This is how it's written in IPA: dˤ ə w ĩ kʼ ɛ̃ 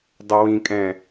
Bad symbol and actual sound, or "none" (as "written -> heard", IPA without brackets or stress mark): none